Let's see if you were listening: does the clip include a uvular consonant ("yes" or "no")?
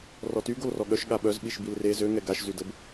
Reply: no